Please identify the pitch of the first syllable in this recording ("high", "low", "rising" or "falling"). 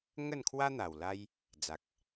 falling